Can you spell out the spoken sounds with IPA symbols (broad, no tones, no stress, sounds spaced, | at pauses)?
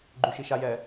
ɡ͡ǃ y ʃ i ʃ a j ɛ